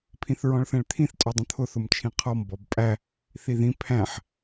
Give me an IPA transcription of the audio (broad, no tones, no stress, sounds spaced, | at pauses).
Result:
pʰ ĩ θ ɹ ɔ̃ ɭ θ ɛ̃ ɭ t̪ʰ ĩ θ tʼ ɔ dˤ ə̃ t̪ʰ ʊ θ ʊ m t͡ʃʰ ĩ qʰ ɔ m b ɔ b pʼ æ | θ i ð ĩ pʰ æ̃ ħ